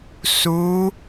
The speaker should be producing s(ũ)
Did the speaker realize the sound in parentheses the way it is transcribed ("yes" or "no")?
no